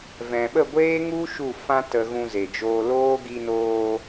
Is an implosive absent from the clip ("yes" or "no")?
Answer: no